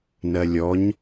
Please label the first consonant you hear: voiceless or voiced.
voiced